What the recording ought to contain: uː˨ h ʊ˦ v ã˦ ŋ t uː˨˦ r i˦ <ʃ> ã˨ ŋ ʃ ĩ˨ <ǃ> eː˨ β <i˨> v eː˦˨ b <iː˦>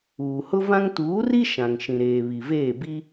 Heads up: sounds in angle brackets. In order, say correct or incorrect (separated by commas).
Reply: correct, incorrect, correct, incorrect